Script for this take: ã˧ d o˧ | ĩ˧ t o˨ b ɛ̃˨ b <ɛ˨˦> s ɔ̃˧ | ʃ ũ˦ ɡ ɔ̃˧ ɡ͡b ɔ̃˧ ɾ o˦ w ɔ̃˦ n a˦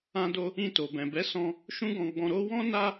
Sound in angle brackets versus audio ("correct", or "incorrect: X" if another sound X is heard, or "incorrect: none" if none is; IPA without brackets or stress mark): correct